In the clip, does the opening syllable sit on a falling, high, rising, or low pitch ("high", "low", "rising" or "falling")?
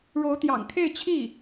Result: rising